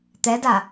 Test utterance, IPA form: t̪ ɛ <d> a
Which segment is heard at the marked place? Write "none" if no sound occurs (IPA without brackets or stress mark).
d